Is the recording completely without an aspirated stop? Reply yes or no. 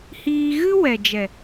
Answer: yes